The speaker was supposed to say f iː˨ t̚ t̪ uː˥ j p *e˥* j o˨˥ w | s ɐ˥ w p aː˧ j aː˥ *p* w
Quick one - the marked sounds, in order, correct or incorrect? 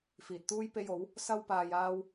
correct, incorrect: none

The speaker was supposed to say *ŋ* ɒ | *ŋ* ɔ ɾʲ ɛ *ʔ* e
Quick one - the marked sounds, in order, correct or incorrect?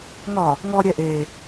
correct, correct, correct

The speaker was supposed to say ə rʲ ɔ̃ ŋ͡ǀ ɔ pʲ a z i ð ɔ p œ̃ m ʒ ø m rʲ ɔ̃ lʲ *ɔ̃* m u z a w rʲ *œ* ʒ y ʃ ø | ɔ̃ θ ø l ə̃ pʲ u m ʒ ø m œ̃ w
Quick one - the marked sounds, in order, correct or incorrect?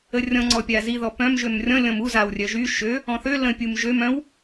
correct, correct

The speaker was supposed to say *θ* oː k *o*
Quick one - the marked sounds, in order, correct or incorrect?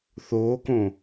correct, incorrect: õ

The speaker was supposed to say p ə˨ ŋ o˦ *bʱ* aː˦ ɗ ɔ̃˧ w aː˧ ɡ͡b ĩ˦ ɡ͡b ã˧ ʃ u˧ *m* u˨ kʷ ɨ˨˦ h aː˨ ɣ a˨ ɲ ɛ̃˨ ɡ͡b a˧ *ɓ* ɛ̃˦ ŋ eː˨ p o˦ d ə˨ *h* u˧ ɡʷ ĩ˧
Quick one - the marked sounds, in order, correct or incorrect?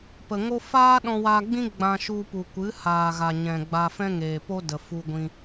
incorrect: f, incorrect: p, incorrect: f, incorrect: f

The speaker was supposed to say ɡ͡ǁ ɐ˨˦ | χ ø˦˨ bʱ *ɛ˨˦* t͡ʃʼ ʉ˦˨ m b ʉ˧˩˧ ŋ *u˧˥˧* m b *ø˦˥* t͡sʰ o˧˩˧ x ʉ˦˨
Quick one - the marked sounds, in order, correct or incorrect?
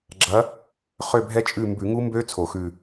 incorrect: ɛ˦˥, incorrect: u˦˥, correct

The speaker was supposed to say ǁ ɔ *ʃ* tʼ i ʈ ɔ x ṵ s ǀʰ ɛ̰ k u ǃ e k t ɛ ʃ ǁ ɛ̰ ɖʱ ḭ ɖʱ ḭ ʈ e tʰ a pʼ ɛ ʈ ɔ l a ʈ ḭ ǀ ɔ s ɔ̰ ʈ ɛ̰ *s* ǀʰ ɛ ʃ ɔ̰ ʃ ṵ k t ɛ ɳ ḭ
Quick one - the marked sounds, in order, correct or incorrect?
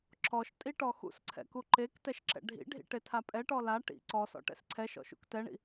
correct, correct

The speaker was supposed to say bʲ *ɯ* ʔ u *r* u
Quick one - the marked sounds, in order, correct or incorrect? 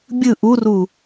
correct, correct

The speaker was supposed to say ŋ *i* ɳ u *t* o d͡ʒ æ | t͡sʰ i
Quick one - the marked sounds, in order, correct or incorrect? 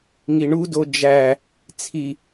correct, incorrect: d

